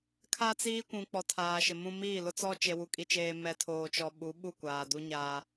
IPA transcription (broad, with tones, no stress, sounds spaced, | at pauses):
kʰ a˦ t͡s iː˦ kʷ ũ˨ k͡p ɔ˨ tʰ aː˨ ʃ ɪ˨ m ũ˦ m iː˦˨ l ʊ˦ t͡s ɔ˦ t͡ʃ e˨ w u˨ kʼ i˨ t͡ʃ eː˨ m ɛ˨ tʰ oː˨ t͡ʃ ɔ˨ ɓ u˨˦ ɓ u˦˨ kʷ aː˨ d u˦ ɲ aː˦